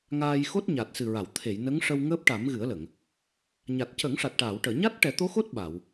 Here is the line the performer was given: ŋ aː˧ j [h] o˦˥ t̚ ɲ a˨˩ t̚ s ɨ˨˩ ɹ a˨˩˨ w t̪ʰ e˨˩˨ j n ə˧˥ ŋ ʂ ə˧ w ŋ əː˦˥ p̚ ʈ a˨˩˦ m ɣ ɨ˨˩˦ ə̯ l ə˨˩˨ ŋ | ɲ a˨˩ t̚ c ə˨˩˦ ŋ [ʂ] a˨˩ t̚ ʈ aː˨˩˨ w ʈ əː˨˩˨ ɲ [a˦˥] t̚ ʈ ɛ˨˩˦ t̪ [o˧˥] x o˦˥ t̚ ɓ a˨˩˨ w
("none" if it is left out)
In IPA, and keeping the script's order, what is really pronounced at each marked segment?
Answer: x, ʂ, a˦˥, o˧˥

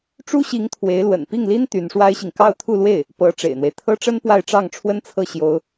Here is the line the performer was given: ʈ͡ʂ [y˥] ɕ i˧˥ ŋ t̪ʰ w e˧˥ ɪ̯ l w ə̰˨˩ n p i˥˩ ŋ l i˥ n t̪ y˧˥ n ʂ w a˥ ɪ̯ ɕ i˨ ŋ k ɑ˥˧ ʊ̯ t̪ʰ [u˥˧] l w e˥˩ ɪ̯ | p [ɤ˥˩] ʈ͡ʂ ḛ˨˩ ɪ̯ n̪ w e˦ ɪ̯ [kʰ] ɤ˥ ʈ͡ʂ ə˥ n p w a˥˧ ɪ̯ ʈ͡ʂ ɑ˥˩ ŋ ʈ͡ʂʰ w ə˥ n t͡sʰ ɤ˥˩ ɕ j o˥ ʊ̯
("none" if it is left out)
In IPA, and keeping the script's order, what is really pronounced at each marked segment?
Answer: u˥, u˥˧, ɤ˧˥, t̪ʰ

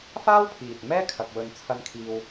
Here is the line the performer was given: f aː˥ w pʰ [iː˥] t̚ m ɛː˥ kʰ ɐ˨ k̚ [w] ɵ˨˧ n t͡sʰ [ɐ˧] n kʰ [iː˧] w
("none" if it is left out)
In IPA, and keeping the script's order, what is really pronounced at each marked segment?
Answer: iː˨, w, ɐ˧, iː˧

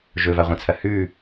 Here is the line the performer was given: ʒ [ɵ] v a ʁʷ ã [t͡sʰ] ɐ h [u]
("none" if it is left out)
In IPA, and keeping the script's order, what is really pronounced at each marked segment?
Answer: ɵ, t͡sʰ, ʉ

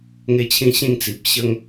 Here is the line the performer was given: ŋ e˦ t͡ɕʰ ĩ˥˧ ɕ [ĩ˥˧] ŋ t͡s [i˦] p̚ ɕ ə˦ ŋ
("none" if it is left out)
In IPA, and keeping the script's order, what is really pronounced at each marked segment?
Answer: ĩ˥˧, i˨

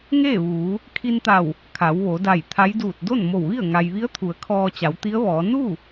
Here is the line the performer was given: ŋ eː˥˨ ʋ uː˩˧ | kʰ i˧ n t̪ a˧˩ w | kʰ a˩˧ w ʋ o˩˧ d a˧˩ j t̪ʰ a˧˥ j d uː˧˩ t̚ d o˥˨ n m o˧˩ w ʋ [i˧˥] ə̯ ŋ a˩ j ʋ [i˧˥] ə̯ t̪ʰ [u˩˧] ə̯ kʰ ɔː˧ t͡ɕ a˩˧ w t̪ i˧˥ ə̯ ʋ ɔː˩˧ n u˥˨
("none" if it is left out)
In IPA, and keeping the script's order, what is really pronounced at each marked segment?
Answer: i˥˨, i˧˥, u˩˧

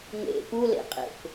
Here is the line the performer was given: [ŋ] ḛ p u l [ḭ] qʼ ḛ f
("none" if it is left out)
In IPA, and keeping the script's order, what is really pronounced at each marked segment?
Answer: ŋ, ḛ

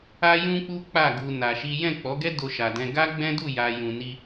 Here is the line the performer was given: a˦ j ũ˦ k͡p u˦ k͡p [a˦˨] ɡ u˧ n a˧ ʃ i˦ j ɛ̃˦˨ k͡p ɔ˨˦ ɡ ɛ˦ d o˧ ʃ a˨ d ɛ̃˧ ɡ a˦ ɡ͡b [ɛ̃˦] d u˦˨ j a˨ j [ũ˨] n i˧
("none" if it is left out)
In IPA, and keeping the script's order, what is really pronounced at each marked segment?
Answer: a˦˨, ɛ̃˦, ũ˨

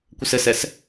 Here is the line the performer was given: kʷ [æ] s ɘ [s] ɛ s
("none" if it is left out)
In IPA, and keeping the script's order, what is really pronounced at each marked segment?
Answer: ə, s

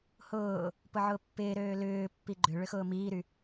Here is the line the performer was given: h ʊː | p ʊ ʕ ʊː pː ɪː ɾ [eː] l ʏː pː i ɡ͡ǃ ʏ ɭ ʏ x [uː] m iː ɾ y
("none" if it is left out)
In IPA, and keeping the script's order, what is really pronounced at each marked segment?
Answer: øː, ʊː

